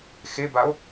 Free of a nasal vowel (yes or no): yes